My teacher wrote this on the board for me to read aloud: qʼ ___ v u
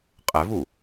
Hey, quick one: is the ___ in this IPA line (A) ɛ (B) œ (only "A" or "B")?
A